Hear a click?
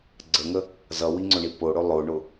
yes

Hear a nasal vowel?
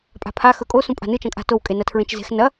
yes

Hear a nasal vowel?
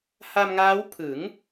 no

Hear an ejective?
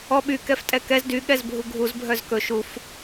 yes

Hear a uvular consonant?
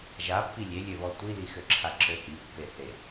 no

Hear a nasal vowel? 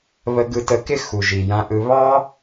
yes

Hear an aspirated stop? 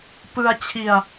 yes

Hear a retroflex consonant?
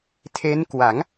no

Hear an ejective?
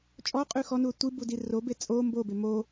yes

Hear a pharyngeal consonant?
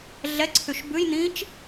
no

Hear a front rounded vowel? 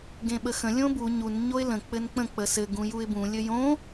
no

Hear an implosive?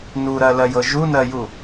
no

